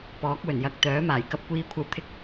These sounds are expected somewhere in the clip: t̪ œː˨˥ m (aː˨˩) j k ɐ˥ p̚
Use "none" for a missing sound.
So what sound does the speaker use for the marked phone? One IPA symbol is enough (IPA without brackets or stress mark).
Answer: aː˨˩